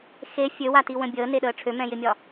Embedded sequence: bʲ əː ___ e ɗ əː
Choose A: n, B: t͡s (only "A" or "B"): A